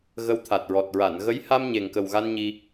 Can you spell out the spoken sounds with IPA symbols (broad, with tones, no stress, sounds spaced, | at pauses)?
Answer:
ɣ ə˧˥ w t̪ʰ a˨˩ t̚ ɹ ɔ˨˩ t̚ ɹ a˨˩˨ n ɣ ə˧˥ j h a˧ m ɲ e˨˩ ŋ k ə˨˩ w ɣ a˧ n ɲ i˧